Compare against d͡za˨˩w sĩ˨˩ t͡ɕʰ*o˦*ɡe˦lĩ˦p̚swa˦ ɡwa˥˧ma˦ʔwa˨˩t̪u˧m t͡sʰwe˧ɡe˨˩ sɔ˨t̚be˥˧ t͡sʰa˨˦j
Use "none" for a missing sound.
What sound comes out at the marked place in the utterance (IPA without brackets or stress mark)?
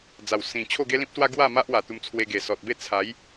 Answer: o˥˧